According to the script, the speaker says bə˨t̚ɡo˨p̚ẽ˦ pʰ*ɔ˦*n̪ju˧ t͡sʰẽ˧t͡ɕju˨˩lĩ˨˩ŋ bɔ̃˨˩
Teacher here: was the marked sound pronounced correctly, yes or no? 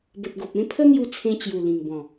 no